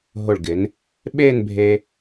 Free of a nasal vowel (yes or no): yes